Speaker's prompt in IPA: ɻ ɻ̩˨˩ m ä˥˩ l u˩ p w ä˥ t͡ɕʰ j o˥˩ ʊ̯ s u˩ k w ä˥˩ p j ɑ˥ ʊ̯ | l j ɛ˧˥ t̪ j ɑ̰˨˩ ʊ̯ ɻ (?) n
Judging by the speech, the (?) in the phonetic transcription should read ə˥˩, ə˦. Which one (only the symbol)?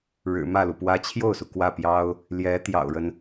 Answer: ə˦